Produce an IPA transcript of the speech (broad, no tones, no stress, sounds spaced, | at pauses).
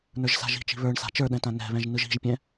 n ə˞ ʒ s a̤ ʒ i̤ t͡ʃ i̤ β ə˞ ɳ s a̤ t͡ʃ ə˞ ɗ ɛ̃ t ã n ɛ̤ β ɛ̃ ʒ n ɯ ʒ i̤ ʒ pʲ ɛ̃